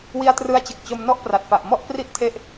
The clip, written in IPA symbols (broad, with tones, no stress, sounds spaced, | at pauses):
w i˧ a̯ t r ɯ˦˥ a̯ t͡ɕ ɯ˨˩ k̚ t͡ɕ o˧ m n ɔ˥˩ ʔ p r a˨˩ t̚ f a˨˩ ʔ m ɔ˥˩ ʔ p r i˥˩ ʔ tʰ e˥˩ ʔ